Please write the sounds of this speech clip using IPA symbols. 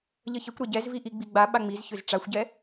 ʎ ə ç ə kʷ ɾ ɛ ɟ ɛ z v i ʔ i ɡ͡b i ɡ͡b a ɓ a ŋ͡m i z ç ʏ z ʈ͡ʂ a xʷ ɟ ɛ

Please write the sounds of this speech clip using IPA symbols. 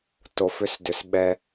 t o˨ f ʏ˧ s d ʏ˨ s ɓ ɛ˧

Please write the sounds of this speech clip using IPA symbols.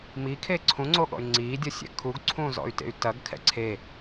m i kʰ e ǀʰ ũ ŋ͡ǀ o ɠ ɔ̰ y̯ ŋ͡ǀ iː dʲ ʌ sʲ ɛ̰ kʰ u ɡ ǀʰ ũː z ɔ̰ y̯ t ḛ y̯ t ɐ ɡ kʰ ɛ̰ ǀʰ e

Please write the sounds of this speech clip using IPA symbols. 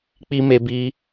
k͡p i˧ m e˧ b i˧

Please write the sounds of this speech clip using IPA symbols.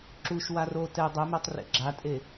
ǁ u ʃ w a r o t ɛ dˤ œ m ɛ tˤ r ḛ ɡ͡ǁ a tʼ e

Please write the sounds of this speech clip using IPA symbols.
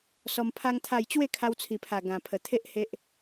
s ɔ˧ m pʰ a˦ ŋ t̪ʰ a˥˧ j t͡ɕ w e˥˧ kʰ a˧ w t͡sʰ i˨˩ pʰ a˨˩ ɡ ã˨˩ pʰ ə˨˩ t̪ʰ e˦ ʔ h e˦ ʔ

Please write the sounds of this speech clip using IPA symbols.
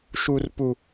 ʃ u˨ r p u˨

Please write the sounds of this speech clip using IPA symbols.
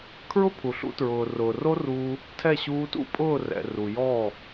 kʰ ɹ ʊ˦ pʰ u˨ ɬ ṵ˧ t ɹ ʊː˨ r ʊː˨ r o˦ r uː˧ | tʰ ɛ˦˨ ɕ uː˧ t ṵ˦ pʼ ʊː˦˨ r ɛ̰˨ r u˨ j ɔː˦˨

